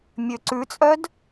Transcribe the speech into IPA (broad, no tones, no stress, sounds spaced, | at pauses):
mʲ ø ǀ ʉ t͡sʼ œ d